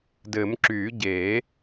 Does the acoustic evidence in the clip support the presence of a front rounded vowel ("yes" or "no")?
yes